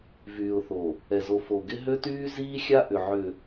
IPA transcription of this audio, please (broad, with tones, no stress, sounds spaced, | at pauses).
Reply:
v yː˨ ʊ̯ θ o˨ | ɛ˨ z o˨ f o˨ ɡ ɪ˦ ɦ ø˦ t yː˦ z iː˦ xʲ a˦ ʔ ʏ˨ ʕ ʏ˨